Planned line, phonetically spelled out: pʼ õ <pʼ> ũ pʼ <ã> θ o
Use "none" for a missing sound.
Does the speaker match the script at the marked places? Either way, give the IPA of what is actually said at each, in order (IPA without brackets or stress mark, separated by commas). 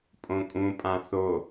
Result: kʼ, ã